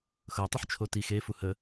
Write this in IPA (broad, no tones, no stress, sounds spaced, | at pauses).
x ɤ tˤ i ħ t͡ʃʰ o t i x e f u h ə